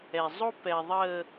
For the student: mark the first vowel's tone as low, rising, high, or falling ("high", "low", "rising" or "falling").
low